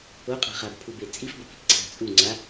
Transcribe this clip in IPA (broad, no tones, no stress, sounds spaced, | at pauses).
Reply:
o qʼ a̤ χ a b pʰ u b e t͡sʼ i f b o k i k ǀʰ a̤ t͡sʼ u ŋ͡ǀ a